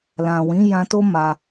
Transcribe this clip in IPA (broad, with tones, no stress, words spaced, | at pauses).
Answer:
lã˨ wĩ˨˦jã˧to˦ ma˧